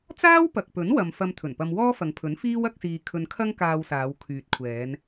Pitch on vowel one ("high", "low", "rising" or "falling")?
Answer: high